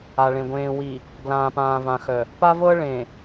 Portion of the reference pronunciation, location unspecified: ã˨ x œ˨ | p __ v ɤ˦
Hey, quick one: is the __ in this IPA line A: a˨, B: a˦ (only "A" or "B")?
B